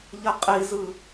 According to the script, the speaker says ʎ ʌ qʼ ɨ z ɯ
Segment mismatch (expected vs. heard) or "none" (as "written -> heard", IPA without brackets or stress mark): ɨ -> i